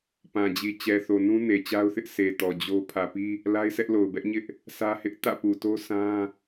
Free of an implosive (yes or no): yes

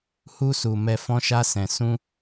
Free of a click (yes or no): yes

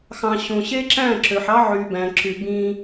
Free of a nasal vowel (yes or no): no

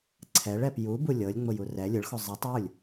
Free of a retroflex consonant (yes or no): no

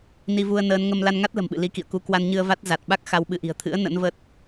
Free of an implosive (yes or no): no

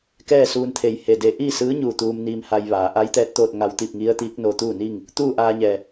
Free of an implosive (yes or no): yes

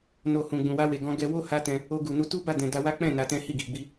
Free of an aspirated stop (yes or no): yes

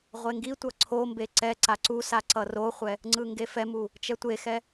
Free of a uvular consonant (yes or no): no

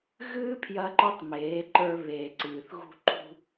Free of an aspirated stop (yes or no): no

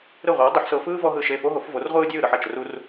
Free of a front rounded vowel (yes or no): yes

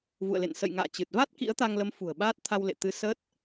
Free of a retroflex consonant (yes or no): yes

